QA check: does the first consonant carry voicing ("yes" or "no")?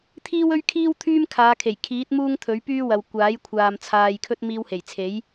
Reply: no